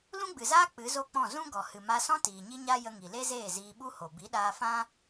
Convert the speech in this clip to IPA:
l ũ˦ ɡ͡b ɨ˨ z aː˦ k͡p ɨ˨˦ z o˦ k͡p ɔ̃˦˨ z ũ˦ ɡ ɔ˨ h ɨ˨ m a˧ s ɔ̃˦ t iː˨ ɲ i˦ ɲ a˦ j ə˧ ŋ i˨ l e˦ z eː˦˨ z iː˧ ɓ u˦ h o˨ b i˨˦ ɗ aː˧ f ã˦

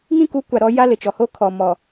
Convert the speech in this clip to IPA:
ŋ ĩ˦ k u˨˦ kʷ a˨ ɾ ɔ˦ j a˦ l ɪ˨ t͡ʃ ɔ˨ h o˦ kʰ ɔ˨ m ɔ˨

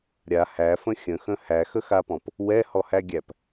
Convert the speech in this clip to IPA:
ɾʲ a h æ f ə̃ xʲ ə̃ x ə̃ h æ x ə x a p ɔ̃ p | w ɛ h ɔ h æ ɡʲ æ p

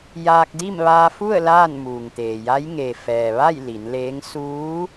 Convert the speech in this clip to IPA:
j aː˧ k̚ d i˥˨ m ʋ aː˧ f u˥˨ ə̯ l aː˥˨ n m uː˩ ŋ t̪ eː˩ j a˧˥ j ŋ e˩ f ɛː˩ ʋ a˥˨ j l i˩˧ n l eː˧˥ ŋ s uː˧˥

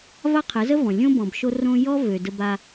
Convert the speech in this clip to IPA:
v a˦ qʰ ə˨˦ z ə˦ v ɔ̃˨ lʲ õ˦ b ɔ̃˨ b ʃ o˦ r õ˦ j ɔ˦ v ø˨ d ə˦ b a˦

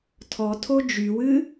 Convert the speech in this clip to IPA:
tʰ ɔ tʰ o d͡ʒ y w ɨ

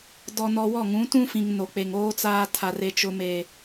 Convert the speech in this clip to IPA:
d ɔ˨ n ɔ˨ w ɔ˦˨ ŋ ũ˨˦ t ũ˦ f ĩ˨ ŋ n o˨ k͡p e˨ ŋ oː˦ t͡s aː˦ tʰ a˦ r e˦ t͡ʃ ʊ˦ m e˨

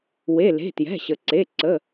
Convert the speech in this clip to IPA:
w e˩˧˩ l e̤˩˧˩ t j ɛ̤˩˧˩ ɕ ə˩ ǀ e˩˧˩ ǀ ə˩˧˩

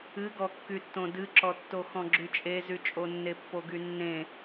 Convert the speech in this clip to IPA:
ɨ ɡ ɔ kː y tː õ d ɨ ǁ ɔ tː o x ɔ̃ ɡ͡ǁ y t͡ʃʼ e z y t͡ʃʼ o nː e pː o ɡ y nː ẽ

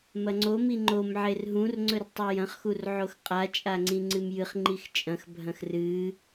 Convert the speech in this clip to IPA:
m ɐ ŋ͡ǀ o m i ŋ͡ǃ o m ʕ e r ɦ ũ r ŋ͡ǀ ɵ r tˤ i j ɐ̃ χ x u r ʕ o x qʼ a t͡ʃʼ a ŋ͡ǀ ĩ ŋ͡ǀ ɨ m j ɨ χ ŋ͡ǃ i x t͡ʃʼ ɐ̃ x bʱ ɐ̃ x r ɨ

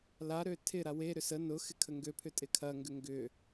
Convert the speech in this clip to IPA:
l a ɾ ø tʰ ɪ ɾ a w e ɾ ʏ s ə n ʊ x ɪ kʰ ə ŋ ɡ ø pʰ ʏ tʼ ɪ kʰ ɐ ŋ ɡ ʏ ŋ ɡ ʏ

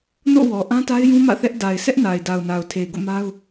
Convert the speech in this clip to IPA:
n o̰˦˨ w ɔ˨ ʔ ã˦ t a˦ ɪ̯ j ũ˦ m ä̰˦˨ θ ɛ˦ ʔ d a˨ ɪ̯ s ɛ˦ ʔ n a˨ ɪ̯ d a˨ ʊ̯ n a˨ ʊ̯ tʰ e˨ ɪ̯ ɡ o̰˦˨ m a˦ ʊ̯

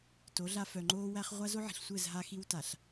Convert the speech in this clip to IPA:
t o˨˦ ɮ a˦ f œ˨ ŋ͡ǃ oː˦ w æ˦ χ ʁʷ a˦ z o˦ ʕ i̤˨ ɬ sʷ ɘː˦˨ z ɦ a˦ x i˦ w t a˨ ɬ

